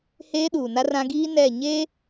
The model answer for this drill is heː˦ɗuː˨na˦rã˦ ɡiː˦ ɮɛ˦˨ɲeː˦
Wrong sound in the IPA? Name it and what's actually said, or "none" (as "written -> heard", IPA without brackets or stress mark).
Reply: ɮ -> n